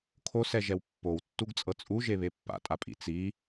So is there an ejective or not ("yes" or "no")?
yes